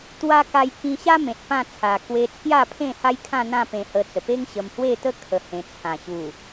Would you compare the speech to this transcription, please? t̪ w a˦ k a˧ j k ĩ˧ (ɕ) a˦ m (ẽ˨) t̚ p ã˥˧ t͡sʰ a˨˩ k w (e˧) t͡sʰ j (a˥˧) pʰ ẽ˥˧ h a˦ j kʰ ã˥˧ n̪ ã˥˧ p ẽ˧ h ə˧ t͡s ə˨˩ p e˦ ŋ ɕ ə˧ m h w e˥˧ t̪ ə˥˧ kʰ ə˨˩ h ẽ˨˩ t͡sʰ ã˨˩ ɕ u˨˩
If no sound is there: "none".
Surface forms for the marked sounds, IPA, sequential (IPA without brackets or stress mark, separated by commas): ɕ, ẽ˨, e˧, a˥˧